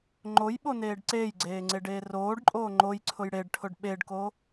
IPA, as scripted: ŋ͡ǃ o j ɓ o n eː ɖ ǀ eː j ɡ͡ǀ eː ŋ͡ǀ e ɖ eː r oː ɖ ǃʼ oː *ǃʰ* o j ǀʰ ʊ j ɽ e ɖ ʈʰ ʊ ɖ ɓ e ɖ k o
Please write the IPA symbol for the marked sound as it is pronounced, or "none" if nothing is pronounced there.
ŋ͡ǃ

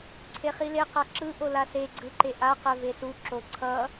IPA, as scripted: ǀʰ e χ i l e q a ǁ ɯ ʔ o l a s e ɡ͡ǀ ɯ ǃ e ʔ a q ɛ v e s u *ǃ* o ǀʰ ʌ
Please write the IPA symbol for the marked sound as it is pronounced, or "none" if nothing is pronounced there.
ǁ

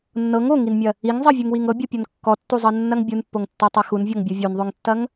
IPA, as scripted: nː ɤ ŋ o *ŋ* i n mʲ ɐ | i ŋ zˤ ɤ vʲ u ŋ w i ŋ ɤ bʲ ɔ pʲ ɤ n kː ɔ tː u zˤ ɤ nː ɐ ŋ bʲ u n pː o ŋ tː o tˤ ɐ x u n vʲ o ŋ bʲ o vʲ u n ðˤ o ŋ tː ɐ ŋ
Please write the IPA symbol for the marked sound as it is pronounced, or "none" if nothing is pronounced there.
ŋ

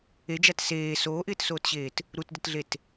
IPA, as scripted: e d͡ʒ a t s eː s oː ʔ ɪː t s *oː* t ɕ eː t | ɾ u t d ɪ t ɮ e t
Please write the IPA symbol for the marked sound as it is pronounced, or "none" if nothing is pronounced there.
oː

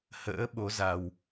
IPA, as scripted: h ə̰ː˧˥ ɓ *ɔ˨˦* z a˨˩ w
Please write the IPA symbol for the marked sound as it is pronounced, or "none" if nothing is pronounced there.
o˨˦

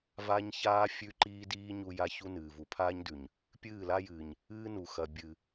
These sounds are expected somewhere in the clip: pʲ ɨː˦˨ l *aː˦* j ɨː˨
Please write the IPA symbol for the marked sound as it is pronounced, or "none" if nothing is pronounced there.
a˦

